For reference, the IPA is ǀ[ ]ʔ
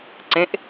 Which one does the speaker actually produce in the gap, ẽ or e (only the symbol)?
ẽ